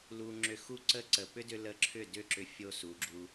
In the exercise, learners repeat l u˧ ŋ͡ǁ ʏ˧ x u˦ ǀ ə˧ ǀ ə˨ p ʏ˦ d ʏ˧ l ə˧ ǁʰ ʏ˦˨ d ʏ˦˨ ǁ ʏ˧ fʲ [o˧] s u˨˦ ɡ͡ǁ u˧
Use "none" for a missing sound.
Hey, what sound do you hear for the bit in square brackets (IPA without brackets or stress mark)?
o˧